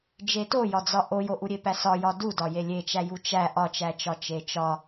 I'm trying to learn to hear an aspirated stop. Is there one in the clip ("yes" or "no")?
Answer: no